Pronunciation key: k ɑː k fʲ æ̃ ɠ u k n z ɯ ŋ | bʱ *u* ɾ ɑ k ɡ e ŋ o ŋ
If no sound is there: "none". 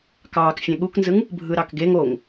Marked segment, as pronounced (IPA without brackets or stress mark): ɯ